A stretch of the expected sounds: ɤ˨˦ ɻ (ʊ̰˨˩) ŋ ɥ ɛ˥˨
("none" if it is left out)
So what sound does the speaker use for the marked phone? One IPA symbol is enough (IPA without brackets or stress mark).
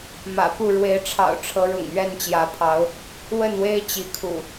ʊ̰˨˩